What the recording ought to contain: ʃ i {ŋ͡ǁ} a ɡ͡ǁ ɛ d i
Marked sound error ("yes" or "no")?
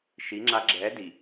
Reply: no